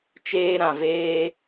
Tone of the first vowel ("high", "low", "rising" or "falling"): high